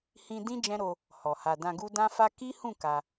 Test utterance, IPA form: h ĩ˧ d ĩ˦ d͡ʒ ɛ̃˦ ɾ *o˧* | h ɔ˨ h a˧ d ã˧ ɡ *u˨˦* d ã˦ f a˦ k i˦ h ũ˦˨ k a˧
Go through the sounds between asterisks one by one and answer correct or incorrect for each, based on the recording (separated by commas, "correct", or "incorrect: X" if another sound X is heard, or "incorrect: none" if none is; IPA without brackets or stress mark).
correct, incorrect: u˦